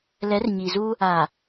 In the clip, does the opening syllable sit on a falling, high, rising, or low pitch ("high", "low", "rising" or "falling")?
rising